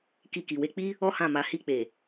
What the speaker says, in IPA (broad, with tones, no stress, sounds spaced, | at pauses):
k i˧ k i˨ w e˧ k͡p i˦ | ɔ˦ h ã˦˨ m a˨˦ h i˧ k͡p e˨